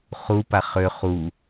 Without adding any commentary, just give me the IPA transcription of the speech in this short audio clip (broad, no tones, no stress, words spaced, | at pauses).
χupa χø χu